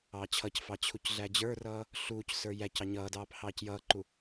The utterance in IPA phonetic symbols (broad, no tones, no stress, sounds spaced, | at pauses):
ɑː t͡ɕʰ ʌ c f ɑ t͡ɕʰ u c ɮ æ d͡ʑ ə˞ r ʌː | ɬ uː c s ə˞ j æ c ɑ ɲ ʌː d ɑː p h ɑː c j ʌː ǃ u